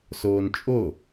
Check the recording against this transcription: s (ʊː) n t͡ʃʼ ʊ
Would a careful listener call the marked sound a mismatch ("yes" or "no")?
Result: no